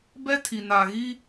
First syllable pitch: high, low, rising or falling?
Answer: high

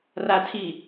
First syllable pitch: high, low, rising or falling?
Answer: low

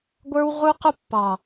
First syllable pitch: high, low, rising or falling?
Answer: high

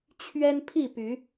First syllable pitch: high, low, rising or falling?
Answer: high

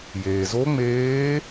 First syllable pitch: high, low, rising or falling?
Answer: low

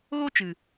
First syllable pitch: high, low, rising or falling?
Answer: high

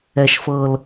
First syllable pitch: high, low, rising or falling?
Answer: low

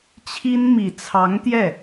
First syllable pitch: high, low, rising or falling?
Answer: high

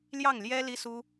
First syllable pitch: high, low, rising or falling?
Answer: falling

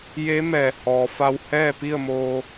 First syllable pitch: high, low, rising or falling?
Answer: rising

